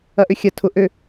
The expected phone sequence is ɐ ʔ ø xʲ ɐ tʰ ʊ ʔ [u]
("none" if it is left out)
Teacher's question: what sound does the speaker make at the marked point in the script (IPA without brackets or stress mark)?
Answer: ø